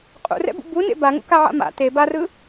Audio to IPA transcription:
qʼṵrɛ̰bṵ bunḛ baŋṵkaʕa̰ ma̰ te barɯ

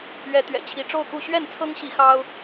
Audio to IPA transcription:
ɥɛ˨˦t̪ɥɛ̰˨˩t͡ɕʰi˨˦ ʈ͡ʂo˥˨ʊ̯ku˥˨ ɕɥɛ˥˨nt͡sʰɤ˦ŋɕi˨˦ xɑ˦ʊ̯

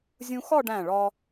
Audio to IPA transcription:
zʲũ˧xɒ˥˧ɖæ̃˧˩ɭɒ˧

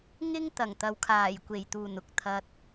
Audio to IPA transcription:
ŋɪ˥ŋt̪ɐ˨˩ŋ t̪ɐ˨˧wkʰaː˨˩jkʷe˨˩jt̪uː˨˩n ʊ˨k̚ t̪ʰɐ˨t̚

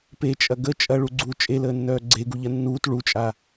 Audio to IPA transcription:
pet͡ʃʼɐ ɡə t͡ʃʼɐɭuɡ͡ǀuː t͡ʃʼeləːnːœː ɡ͡ǀeɡuʎɐ nːuːt ɭut͡ʃʼa

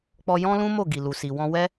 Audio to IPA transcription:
k͡pɔ˧ jɔ̃˦lũ˦mo˦˨ ɡi˨lu˨si˨ wɔ̃˧wɛ˦

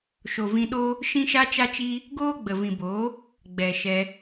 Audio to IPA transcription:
ʃo˨vĩ˧ɗoː˦ | ʃĩ˦ʃa˦t͡ʃa˦t͡ʃiː˦ | ɡoː˦ɡ͡bə˨vĩ˨boː˨˦ | ɡ͡bɛ˨ʃɛ˧

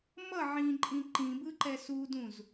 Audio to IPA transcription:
mʌ ʕĩǃʼĩ ǃĩbɯǃɛ sudũz

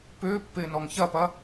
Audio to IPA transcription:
pʏːpːɪːnɔŋ çɐpɐ

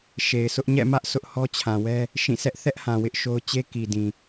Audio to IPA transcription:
ʃe˨ɪ̯sʊ˦ʔ ɲɛ̰˦˨mä˦ʔ sʰʊ˦ʔhɔ˦t͡ɕʰã˨wɛ˦ | ʃĩ˦˨sʰɛ˦ʔ θɛ˦ʔhã˨ wɪ˦ʔʃo˦ʊ̯ t͡ɕe˦ki˨dĩ˨

